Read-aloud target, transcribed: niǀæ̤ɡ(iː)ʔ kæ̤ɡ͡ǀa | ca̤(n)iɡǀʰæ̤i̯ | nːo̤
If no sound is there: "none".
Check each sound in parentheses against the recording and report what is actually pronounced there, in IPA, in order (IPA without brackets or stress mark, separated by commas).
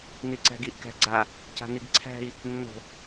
i, n